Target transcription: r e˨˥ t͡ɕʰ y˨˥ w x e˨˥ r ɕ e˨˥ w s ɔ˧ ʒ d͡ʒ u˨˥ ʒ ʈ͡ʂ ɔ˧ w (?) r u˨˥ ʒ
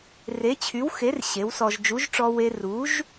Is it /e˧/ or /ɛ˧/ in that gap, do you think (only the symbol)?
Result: e˧